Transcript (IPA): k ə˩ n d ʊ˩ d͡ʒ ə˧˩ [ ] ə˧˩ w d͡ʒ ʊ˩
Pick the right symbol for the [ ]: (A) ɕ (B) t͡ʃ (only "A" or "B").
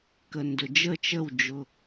B